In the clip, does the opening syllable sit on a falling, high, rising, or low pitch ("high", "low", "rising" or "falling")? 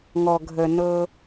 low